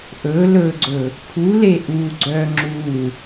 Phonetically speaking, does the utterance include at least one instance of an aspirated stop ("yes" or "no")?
yes